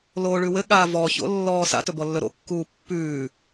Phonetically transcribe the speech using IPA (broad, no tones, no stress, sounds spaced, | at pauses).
l oː ɭ ʉ w ɘ ɠ aː v ɔ ç o̰ lː ɔː s a̰ t ɵ b ɔ lː ɵ ɾ o̰ kː uː pː ʉː